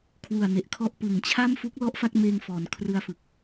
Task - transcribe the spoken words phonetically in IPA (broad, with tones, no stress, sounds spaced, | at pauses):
kʰ w u˨˩ a̯ n e˨˩ ʔ kʰ ɔ˥˩ ʔ p ɯ˨˩ ŋ t͡ɕʰ a˥˩ m f u˦˥ k̚ l ɔ˦˥ ʔ f a˥˩ k̚ m eː˧ ŋ f ɔː˩˦ n kʰ r ɯ˧ a̯ f ɯ˨˩ k̚